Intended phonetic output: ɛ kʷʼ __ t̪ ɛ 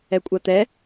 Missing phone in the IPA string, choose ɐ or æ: ɐ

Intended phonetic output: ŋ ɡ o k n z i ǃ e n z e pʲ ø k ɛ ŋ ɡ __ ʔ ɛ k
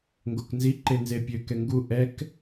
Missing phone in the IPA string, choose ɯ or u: u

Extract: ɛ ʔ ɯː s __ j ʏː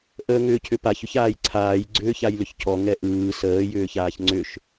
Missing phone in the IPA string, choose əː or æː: əː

